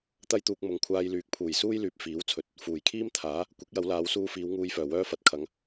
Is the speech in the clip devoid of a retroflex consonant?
yes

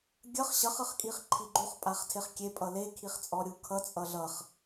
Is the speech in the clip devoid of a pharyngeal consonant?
yes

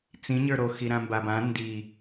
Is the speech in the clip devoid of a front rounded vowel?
yes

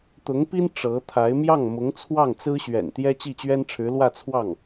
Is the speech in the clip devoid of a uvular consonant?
yes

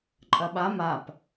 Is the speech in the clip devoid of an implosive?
no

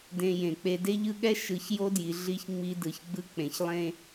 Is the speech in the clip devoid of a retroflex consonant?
yes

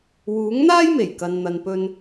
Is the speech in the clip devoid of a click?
yes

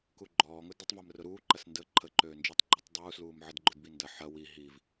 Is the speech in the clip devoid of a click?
no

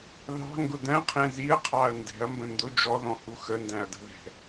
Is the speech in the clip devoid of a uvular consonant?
no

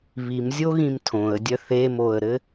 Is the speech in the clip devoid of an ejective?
yes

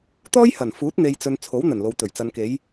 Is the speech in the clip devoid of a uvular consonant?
yes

